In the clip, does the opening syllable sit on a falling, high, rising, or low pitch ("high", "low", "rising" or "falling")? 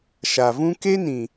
low